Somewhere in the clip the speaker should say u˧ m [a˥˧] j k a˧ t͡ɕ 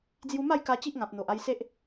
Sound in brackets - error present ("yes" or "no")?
no